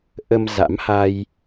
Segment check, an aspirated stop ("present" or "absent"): absent